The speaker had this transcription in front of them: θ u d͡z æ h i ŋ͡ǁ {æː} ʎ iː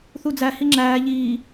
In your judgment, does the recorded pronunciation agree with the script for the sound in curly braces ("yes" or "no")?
yes